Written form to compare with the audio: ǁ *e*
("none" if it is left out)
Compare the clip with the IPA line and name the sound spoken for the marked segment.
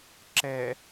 ɛ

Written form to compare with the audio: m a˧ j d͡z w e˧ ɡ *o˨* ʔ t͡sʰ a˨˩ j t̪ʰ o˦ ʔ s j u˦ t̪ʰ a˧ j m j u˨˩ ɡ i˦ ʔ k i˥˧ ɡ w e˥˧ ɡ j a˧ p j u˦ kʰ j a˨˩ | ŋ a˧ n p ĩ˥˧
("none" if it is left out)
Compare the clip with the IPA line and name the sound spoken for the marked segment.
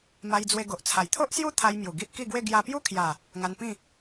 o˨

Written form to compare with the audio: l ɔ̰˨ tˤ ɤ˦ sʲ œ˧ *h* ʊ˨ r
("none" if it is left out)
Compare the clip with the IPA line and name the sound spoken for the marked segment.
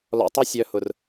h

